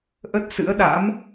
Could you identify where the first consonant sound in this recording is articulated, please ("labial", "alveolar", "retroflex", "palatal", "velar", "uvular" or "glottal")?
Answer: glottal